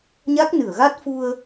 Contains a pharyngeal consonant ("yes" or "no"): no